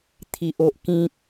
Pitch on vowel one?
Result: low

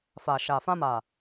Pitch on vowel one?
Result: low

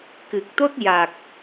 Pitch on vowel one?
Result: low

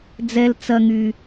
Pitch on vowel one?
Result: high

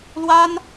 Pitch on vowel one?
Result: high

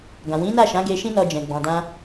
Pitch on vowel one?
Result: low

